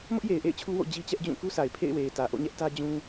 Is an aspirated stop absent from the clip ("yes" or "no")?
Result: no